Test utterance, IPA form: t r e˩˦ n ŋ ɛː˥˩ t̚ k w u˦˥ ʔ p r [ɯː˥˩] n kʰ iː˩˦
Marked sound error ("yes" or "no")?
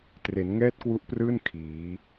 no